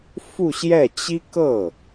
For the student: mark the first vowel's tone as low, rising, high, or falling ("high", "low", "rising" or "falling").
falling